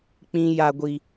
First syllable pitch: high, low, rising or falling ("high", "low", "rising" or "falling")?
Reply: high